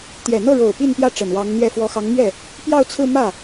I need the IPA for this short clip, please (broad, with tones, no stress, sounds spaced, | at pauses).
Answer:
t̪ j ɛ˨˩ n̪ ɤ˥˩ ɻ o˨˩ ʊ̯ p i˥˧ n p j ä˥˩ ʈ͡ʂ ə˨˩ n w ɑ˧˥ ŋ n̪ ɥ ɛ˥˩ f w ɔ˧˥ x ɑ˧˥ ŋ m ɥ ɛ˥˩ | p j ɑ˥˧ ʊ̯ t͡sʰ ɹ̩˥˧ m ä˥˩